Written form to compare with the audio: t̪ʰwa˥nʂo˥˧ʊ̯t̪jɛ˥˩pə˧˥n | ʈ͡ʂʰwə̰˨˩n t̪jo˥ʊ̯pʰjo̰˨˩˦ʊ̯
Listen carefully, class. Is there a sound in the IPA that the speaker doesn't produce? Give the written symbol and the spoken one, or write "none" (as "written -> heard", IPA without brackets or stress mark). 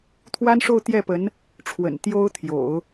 pʰ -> t̪ʰ